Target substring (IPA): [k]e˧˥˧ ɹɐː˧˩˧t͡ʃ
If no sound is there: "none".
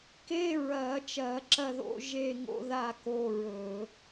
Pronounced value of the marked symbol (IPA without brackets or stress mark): k